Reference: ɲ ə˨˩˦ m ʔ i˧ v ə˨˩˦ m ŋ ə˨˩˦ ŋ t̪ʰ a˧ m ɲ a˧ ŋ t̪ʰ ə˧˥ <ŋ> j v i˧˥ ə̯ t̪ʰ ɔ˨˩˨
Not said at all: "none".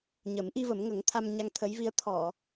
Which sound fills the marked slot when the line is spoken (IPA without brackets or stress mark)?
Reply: none